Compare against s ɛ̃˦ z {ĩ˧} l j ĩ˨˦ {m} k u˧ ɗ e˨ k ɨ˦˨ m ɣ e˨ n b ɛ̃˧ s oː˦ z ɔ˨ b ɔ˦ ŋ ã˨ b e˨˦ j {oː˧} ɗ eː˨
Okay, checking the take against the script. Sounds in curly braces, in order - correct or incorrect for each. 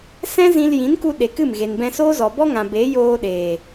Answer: correct, incorrect, correct

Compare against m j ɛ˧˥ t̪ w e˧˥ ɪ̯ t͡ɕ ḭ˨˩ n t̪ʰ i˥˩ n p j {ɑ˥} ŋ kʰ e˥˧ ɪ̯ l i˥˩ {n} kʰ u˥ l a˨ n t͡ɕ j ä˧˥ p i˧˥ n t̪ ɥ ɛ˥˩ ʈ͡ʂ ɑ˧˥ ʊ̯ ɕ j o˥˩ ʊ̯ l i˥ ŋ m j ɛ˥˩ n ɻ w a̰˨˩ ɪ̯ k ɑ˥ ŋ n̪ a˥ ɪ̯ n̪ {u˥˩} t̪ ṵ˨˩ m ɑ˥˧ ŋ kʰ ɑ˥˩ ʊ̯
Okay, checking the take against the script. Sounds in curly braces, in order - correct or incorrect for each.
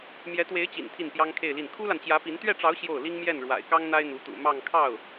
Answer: correct, correct, incorrect

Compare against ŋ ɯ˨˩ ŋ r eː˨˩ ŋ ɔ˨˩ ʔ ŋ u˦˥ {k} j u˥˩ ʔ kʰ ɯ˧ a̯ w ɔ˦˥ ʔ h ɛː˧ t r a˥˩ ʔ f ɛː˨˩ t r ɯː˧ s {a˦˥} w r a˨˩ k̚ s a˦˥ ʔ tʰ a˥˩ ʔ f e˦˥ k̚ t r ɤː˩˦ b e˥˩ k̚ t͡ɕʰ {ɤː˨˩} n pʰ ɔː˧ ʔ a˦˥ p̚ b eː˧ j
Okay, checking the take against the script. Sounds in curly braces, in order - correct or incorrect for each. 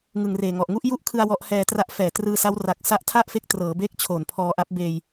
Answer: incorrect, correct, incorrect

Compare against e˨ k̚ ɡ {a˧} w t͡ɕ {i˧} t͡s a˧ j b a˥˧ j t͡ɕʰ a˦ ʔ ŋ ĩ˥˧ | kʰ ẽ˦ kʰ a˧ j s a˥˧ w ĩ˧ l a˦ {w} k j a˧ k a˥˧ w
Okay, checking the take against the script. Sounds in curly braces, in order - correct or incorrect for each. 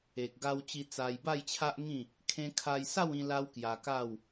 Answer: correct, correct, correct

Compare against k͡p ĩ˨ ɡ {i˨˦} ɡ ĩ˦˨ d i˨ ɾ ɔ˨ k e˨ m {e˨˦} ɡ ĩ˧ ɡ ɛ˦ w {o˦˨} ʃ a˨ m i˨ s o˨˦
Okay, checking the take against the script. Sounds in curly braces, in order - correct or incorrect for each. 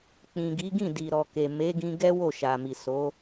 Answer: correct, correct, correct

